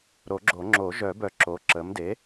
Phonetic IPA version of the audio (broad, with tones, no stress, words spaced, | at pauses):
ɾo˨˩˦ɡ͡ǁo˨˩˦ ŋ͡ǁo˨˩˦ ʒœ˨˩˦bœ˨˩˦ ǁo˩˥ǁə˩˥m de˩˥